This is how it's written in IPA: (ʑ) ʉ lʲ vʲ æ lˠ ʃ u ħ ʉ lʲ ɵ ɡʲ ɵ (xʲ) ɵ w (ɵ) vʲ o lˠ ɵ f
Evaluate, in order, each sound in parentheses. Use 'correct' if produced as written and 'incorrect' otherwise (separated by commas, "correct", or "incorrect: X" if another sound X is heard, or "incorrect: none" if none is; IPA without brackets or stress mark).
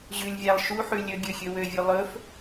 correct, correct, incorrect: ø